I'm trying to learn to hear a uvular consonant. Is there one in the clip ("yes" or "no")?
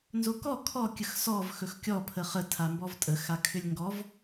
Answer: yes